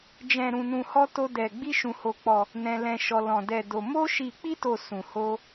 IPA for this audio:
d͡ʒ ɛ̃˧ ɾ ũ˧ n ũ˧ h ɔ˦ t o˦ d ɛ˧ ɡ͡b i˦ ʃ ũ˧ h o˧ k͡p ɔ˧ | n ɛ̃˦ l ɛ̃˦ ʃ ɔ˦ l ɔ̃˧ d ɛ˧ d o˧ m o˦ ʃ i˧ k͡p i˦ t o˧ s ũ˧ h o˦

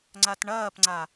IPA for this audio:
ŋ͡ǀ a t ɳ ɐː p ŋ͡ǀ a

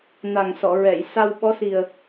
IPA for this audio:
n a˨˩ ŋ s ɔ˨˩˨ ɹ ɛ˨˩˨ j s a˧ w ɓ ɔ˧˥ s i˨˩ ə̯

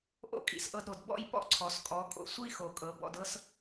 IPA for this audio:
ʔ o̰˧ kʼ ḭ˨ s ʔ ɤ˧ d ɾ o˨ d b ɔ̰˦˨ j p ɔ̰˦˨ ǀʰ ɔ˨ s kʼ ɔ˨˦ kʼ o̰˧ sʷ i˦ x o˨ kʼ ɤ˨˦ b ɔ̰˧ d ɤ˦ s

